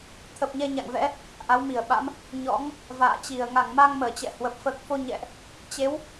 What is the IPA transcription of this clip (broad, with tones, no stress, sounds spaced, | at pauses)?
t̪ʰ ə˨˩ p̚ ɲ ɛ˧ ɲ a̰˧˨ ŋ v ɛ̰˧˥ | ʔ a˨˦ w m i˧˩ ə̯ ɓ a̰˧˥ m | ɲ ɔ̰˧˥ ŋ | v a̰ː˧˨ t͡ɕ i˧˩ ə̯ ŋ a˧˩ ŋ m a˧ ŋ m əː˧˩ t͡ɕ ɛ̰˧˨ h w ə˨˩ p̚ f əː˨˩ k̚ f o˧ ɲ ɛ̰˧˨ ʔ | t͡ɕ e˨˦ w